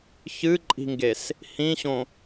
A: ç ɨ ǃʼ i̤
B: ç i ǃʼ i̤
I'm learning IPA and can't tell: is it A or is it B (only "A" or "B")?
A